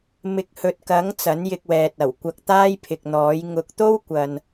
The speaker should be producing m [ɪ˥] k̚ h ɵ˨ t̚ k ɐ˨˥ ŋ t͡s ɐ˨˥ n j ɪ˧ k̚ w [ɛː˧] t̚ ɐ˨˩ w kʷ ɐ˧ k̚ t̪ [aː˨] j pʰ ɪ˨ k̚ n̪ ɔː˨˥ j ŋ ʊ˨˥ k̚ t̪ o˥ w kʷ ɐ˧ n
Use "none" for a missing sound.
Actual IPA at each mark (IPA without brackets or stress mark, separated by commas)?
ɪ˨, ɛː˨, aː˥